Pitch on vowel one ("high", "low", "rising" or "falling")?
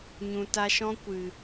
low